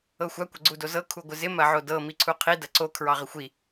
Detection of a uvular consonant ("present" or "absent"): present